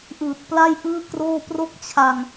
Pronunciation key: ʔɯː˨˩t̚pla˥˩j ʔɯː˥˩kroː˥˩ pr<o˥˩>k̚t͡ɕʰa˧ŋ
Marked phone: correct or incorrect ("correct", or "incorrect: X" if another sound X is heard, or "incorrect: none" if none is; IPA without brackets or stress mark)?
correct